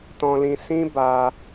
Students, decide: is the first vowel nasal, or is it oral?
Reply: nasal